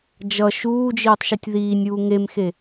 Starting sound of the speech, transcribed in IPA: d͡ʒ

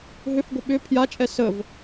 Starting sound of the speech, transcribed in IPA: ɦ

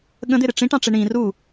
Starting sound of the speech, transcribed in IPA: ɠ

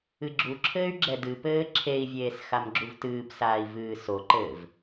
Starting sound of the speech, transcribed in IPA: ɨ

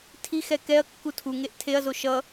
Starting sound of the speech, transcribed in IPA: tʰ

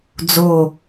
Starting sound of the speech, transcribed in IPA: d͡z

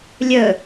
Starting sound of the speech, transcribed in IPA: lʲ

